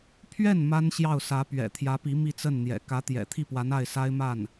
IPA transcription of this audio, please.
pʰ ɥ ɛ˥˩ n m a˥ n ɕ j ɑ˥˩ ʊ̯ s ä˧˥ p ɥ ɛ̰˨˩ t̪ʰ j ä˧˥ p i˧˥ m i˥˧ t͡s ə˥˩ n n̪ j ɛ̰˨˩ k ä˧˥ t̪ j ɛ̰˨˩ t̪ʰ i˥˩ p w a˧˥ n a˥˩ ɪ̯ s a˥ ɪ̯ m a˥˩ n

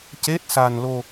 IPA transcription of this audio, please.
c e˦˥ t̚ s a˧ n l o˧

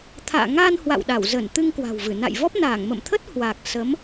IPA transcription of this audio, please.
t̪ʰ a̰ː˧˨ ŋ a˧ n h w a̰˧˨ w ɗ a˧˩ w z ə˧˩ n t̪ ɨ˧ ŋ k w a̤˨˩ w v ɨ˧˩ n a̰˧˨ j v ɔ˦˥ p̚ n aː˧˩ ŋ m ə̰˧˨ m t̪ʰ ə˦˥ t̚ h w a˨˩ k̚ s ə˨˦ m

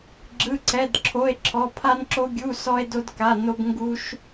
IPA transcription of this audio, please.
ɡ͡ǁ ɯ˧˥˧ ǀ ɛ˧˥˧ d ǁʰ o˧˥˧ e̯ ǁʰ ɔ˧˥˧ pʰ a˥ n ǁ o˥ ɡʲ u˧˥˧ s ɔ˥ e̯ d o˥ d k a˧˥˧ n o˥ b ŋ ɡ u˥ ʃ

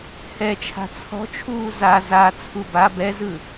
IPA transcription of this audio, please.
h ɛ t͡ʃʰ a̤ t͡sʰ ɔ̤ t͡ʃʰ uː z a z a t͡sʰ u b a b ɛ z ɯ

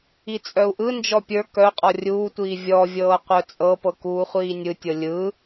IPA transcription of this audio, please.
i t͡sʼ œ u̯ ʔ ɯ n d͡ʒ ɔ pʲ ə˞ k œ qʼ ɔ rʲ uː tʷ iː vʲ ɔ vʲ ɤː qʷ œ t͡sʼ ɤ p ɤ k uː χʷ iː nʲ ɯ tʲ ɤ lʲ ɯ

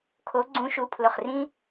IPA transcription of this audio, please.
kʰ o˨˥ ɡ͡ǀ ũ˨˥ ʃ u˩˧˩ pʰ l ʊ˧˩ χ r ĩ˦

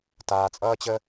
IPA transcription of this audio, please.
t aː˧ t͡sʼ ʌː˦ t͡ɕ ə˦

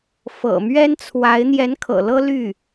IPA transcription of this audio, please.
f ɤ̰˨˩ m ɥ ɛ˥ n t͡sʰ w a˧˥ ɪ̯ n̪ j ɛ˧˥ n kʰ ɤ̰˨˩ l ɤ˥ l y˥˩

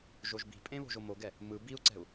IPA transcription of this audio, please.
ʒ o ʒ b i̤ pʼ ẽ β o̤ ʒ o m o ɡ ɛ | m ɯ b i u̯ ǀ ɛ̤ u̯

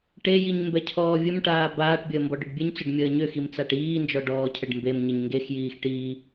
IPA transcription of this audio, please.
ʈ e j i ɲ m b ɛ cʰ ɔː vʲ ə m ʈ aː b aː ʈ bʲ əː m b ɔ ɖ ʏ ɖ bʲ e ɲ t͡s ʏ ɖ mʲ əː ɲ ʏ x i m t͡s a ʈ iː n d͡ʒ ɔ ɖ ɔː cʰ ə ɖ m b e m ɲ ə ɲ ŋ ɡ e x j iː x ʈ iː

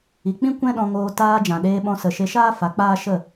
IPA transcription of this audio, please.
i˨ k͡p ĩ˦ kʷ ɛ̃˦ ɗ ɔ̃˧ ŋ oː˧ t aː˧ d͡ʒ ã˨ ɗ eː˧ ɓ ɔ̃˧ s ə˨ ʃ e˧ ʃ aː˦ f a˨˦ k͡p aː˦ ʃ ə˦˨

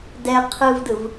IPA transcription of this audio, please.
d ɛ qʰ ɯ v d ɯ v

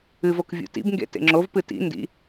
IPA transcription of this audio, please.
ɨ v o k vʲ ṵ t ḭ b ŋ ɡ ḛ t ḛ ŋ͡ǁ o v p ɨ t ḭ n d ḭ

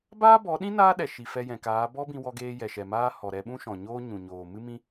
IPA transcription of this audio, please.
b aː˦ b ɔ˨˦ ɗ ĩ˦ n aː˦ ɗ ɛ˨ ʃ i˨ f ɛ˧ j ɛ̃˨ k aː˨˦ b ɔ˦ b ĩ˧ w ɔ˧ ɡ eː˧ j ɛ˨ ʃ ɛ˨ m aː˧ h ɔ˨ ɾ ɛ˧ ɓ ũ˦ ʃ ɔ̃˨ ɲ oː˦ ɲ ũ˨ ɲ oː˨ m ɨ˦ m ĩ˦

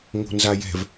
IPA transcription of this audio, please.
ŋ o̤ n z a j ɛ̤ v

